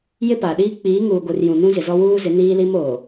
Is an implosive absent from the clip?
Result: no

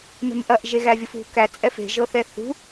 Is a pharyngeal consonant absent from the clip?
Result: yes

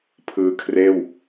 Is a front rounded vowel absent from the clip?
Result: yes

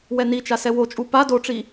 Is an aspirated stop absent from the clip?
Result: yes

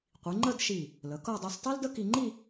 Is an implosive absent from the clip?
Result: yes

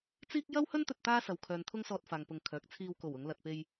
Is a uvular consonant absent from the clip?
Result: yes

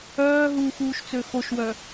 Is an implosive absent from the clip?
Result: yes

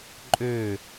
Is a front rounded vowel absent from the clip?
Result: no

